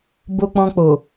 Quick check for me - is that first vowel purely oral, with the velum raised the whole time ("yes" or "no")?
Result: yes